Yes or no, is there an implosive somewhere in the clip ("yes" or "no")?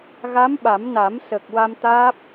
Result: yes